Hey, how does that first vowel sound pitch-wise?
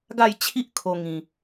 falling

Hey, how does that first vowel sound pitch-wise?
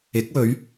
rising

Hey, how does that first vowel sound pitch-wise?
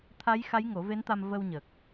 rising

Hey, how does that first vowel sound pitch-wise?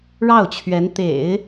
falling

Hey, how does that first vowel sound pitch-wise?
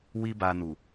high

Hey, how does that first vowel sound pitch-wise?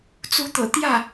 rising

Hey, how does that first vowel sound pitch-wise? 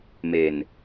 low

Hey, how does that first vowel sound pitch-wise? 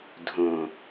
low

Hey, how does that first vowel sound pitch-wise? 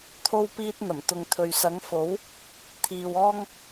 high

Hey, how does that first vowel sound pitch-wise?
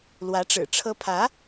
rising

